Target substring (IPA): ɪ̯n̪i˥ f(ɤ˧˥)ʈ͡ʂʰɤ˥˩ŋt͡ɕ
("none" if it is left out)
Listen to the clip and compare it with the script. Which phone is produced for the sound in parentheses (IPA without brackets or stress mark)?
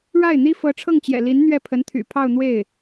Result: ɤ˧˥